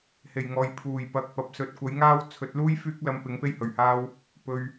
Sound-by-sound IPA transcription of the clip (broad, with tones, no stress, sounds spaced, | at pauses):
h e˨˩ j ŋ ɔː˨ j pʰ uː˨˩ j p ɐ˨˥ k̚ p ɐ˨ p̚ s ɵ˨˥ t̚ kʷ ɐ˨˥ j ŋ aː˥ w t͡sʰ ɵ˨˥ t̚ l uː˥ j f yː˥ k̚ l ɐ˧ m p ɪ˨˥ ŋ p e˥ j h ɵ˨˩ ɥ h aː˥ w | p ɵ˧ ɥ